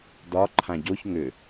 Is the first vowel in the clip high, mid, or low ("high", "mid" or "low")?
low